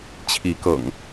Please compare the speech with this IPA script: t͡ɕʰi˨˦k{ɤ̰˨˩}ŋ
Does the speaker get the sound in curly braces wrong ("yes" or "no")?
no